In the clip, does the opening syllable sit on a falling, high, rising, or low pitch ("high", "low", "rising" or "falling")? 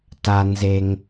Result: low